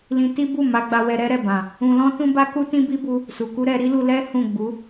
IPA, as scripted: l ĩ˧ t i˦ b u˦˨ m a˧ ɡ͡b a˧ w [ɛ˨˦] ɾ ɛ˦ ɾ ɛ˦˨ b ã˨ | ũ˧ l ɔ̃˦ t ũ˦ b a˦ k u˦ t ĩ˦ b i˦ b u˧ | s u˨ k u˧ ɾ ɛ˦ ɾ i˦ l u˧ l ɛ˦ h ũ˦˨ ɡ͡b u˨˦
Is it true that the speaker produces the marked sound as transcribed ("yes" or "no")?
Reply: no